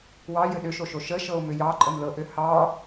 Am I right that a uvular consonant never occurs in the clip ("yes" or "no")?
yes